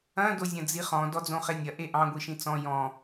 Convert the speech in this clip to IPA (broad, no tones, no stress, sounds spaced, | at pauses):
ɐ̃ d o zʲ ɐ̃ d͡z i χ ɔ̃ d ɔ d͡z õ χ e nʲ ɐ ʔ e ʔ ɑ̃ ɡʷ i ʃ ĩ t͡s ɔ̃ j ɔ̃